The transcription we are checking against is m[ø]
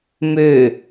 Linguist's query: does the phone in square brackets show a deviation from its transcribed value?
no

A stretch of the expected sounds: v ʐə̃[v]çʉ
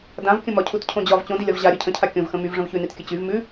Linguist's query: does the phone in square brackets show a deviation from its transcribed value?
no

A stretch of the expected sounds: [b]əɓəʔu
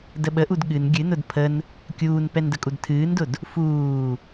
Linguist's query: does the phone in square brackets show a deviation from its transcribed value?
yes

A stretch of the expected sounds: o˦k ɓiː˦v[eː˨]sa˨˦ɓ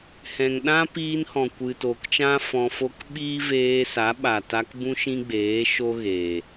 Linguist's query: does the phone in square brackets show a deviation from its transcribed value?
yes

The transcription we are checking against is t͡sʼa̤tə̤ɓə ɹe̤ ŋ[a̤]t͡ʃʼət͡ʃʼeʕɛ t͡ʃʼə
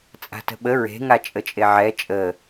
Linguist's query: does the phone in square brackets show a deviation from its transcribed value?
yes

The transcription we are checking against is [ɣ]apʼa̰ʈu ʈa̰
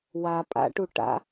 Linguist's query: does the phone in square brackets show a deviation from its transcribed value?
yes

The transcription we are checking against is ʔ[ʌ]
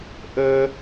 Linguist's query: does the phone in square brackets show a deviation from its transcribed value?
yes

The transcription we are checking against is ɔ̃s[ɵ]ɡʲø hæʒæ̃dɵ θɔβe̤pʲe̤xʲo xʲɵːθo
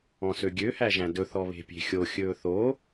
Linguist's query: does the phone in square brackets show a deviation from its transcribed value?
yes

